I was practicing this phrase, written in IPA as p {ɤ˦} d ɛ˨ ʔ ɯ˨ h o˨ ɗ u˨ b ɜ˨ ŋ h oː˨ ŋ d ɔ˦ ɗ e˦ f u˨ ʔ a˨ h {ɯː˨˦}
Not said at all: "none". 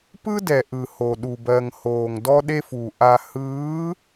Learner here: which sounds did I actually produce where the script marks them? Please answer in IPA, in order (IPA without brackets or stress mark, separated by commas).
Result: ɯ˦, ɯː˨˦